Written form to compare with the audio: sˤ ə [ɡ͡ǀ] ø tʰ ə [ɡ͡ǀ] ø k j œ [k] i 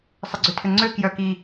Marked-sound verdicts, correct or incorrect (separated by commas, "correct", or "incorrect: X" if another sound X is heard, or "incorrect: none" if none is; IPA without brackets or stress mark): correct, incorrect: ŋ͡ǀ, correct